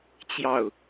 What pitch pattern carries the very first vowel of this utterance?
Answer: falling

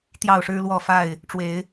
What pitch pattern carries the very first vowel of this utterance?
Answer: falling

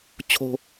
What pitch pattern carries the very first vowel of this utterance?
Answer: low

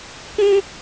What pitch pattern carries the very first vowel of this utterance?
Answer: high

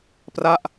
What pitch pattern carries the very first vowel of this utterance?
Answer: falling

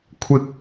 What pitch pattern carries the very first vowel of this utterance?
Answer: high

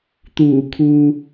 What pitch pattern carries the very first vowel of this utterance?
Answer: low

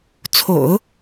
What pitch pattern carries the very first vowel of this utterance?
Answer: low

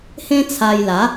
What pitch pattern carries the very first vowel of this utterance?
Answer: high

